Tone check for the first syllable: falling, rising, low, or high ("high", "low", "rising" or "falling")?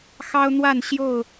high